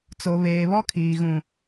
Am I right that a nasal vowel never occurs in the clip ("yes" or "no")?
no